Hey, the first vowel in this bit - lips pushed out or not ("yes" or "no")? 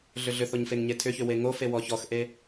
yes